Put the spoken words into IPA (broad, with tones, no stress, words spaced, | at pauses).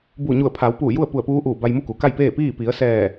buː˧˩ɲu˧˩ə̯ pʰa˩˧wpuː˧˩ ju˥˨ə̯pu˧˩ə̯puː˧˥ ʔuː˧˩ ba˧jmu˥˨ku˩ka˥˨j peː˥˨piː˥˨ pi˩˧ə̯sɛː˧˩